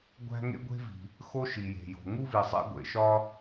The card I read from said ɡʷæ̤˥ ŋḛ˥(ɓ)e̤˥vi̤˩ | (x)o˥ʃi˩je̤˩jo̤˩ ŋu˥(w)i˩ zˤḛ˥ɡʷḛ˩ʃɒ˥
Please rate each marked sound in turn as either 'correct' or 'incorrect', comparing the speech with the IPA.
incorrect: ɡʷ, correct, incorrect: v

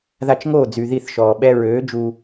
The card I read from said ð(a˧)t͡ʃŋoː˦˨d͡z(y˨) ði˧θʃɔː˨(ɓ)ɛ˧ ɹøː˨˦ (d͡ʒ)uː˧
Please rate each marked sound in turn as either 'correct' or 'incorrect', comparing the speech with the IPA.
correct, correct, correct, correct

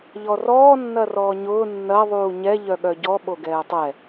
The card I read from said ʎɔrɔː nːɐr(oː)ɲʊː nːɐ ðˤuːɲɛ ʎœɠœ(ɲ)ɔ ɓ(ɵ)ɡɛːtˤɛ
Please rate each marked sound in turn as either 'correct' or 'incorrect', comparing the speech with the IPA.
incorrect: ɔː, incorrect: ɟ, incorrect: o

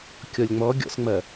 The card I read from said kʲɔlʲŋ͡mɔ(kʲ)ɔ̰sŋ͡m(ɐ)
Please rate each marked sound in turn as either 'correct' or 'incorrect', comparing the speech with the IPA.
incorrect: ɡʲ, correct

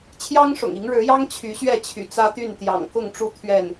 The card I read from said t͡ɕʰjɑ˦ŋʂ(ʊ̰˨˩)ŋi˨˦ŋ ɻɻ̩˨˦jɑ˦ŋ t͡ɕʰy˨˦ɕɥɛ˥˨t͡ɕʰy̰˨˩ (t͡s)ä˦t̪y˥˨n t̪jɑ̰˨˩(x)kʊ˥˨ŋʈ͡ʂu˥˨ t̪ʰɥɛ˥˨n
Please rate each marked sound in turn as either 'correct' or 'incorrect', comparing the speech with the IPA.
correct, correct, incorrect: ŋ

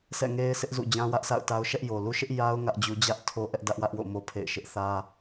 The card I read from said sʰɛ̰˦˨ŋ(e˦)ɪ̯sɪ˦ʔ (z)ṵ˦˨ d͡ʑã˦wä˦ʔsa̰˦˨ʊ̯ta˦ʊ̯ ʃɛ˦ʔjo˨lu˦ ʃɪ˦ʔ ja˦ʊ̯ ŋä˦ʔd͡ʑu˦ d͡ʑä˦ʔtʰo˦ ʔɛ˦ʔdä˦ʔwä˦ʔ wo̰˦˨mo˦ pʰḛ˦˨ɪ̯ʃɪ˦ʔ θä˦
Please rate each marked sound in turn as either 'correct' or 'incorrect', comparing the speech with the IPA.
correct, correct

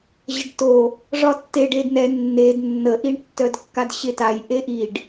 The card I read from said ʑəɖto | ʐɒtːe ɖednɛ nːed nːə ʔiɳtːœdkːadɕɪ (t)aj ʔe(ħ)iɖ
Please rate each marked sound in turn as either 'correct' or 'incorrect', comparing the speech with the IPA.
correct, incorrect: ʔ

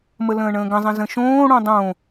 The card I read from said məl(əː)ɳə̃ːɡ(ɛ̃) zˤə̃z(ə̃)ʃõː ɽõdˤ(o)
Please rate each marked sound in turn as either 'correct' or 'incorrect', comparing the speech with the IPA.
incorrect: ə̃ː, incorrect: ə̃, correct, incorrect: õ

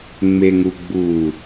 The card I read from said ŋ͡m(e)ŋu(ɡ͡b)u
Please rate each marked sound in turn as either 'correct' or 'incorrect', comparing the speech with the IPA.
correct, correct

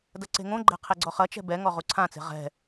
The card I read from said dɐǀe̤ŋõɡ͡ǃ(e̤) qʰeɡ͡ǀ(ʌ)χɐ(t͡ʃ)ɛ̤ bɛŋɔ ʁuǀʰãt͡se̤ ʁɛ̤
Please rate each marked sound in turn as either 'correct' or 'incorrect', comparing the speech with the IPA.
incorrect: ɛ̤, incorrect: ɔ, correct

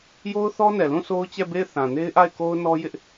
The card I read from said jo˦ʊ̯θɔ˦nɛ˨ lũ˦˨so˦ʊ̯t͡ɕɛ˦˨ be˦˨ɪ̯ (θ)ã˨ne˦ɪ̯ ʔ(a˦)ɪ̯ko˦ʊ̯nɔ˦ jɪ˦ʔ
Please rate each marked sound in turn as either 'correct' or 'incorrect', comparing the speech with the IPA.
correct, incorrect: a˦˨

